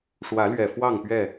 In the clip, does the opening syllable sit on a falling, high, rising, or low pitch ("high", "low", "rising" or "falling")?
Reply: rising